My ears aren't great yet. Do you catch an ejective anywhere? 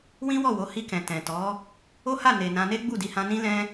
no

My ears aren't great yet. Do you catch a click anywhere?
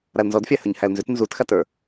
no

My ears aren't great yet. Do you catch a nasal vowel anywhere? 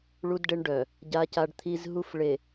no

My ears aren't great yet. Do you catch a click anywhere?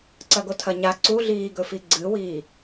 yes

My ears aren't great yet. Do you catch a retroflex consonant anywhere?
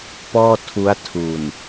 no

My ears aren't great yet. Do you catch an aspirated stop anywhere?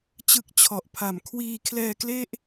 yes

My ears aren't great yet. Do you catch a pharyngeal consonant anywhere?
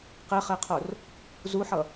yes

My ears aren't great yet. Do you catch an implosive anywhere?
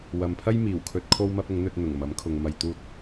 no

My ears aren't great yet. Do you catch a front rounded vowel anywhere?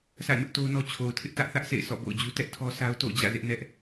no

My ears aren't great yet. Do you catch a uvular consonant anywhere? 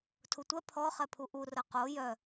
yes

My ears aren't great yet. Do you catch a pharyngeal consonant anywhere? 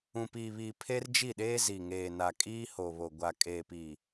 no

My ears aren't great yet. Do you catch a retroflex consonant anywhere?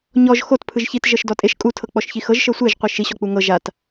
no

